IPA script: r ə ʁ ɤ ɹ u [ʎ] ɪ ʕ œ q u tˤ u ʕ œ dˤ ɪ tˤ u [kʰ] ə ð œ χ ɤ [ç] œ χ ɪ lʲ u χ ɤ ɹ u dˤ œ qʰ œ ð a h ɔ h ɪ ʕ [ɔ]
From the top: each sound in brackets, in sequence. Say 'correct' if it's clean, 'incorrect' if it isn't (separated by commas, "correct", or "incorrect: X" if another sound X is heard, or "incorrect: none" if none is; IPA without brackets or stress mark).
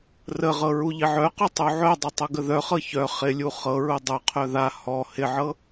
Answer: correct, incorrect: ɡ, correct, incorrect: ɤ